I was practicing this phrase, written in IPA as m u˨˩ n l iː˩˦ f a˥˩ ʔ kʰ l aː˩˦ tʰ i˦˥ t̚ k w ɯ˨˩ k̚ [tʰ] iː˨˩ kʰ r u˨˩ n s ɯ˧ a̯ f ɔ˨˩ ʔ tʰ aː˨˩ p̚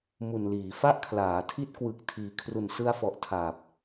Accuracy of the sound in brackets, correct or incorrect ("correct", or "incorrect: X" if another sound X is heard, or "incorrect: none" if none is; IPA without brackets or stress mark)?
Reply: correct